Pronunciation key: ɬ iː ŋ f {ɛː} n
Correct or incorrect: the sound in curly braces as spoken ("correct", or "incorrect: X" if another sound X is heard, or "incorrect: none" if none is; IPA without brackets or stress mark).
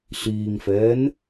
correct